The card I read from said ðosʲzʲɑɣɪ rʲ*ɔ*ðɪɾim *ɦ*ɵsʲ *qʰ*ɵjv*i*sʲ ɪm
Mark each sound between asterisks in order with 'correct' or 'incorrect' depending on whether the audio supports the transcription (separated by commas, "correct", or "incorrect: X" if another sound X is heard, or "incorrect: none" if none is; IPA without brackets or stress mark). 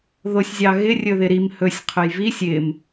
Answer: incorrect: ɵ, incorrect: h, correct, correct